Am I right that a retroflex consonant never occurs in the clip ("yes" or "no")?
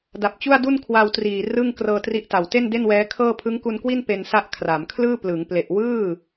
yes